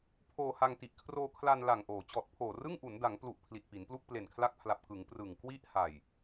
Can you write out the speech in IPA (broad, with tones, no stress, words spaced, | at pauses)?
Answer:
pʰoː˧ha˧ŋti˨˩ʔ kʰroː˧kʰla˧n la˨˩ŋʔoː˩˦ t͡ɕɔː˨˩t̚pʰoː˨˩rɯ˥˩ŋʔu˩˦n da˩˦ŋplu˨˩ʔ pʰli˨˩t̚pi˩˦nplu˥˩k̚ ple˨˩nkʰla˦˥k̚pʰla˨˩p̚ kɯ˩˦ŋ prɯ˨˩ŋ kwi˦˥ʔha˨˩j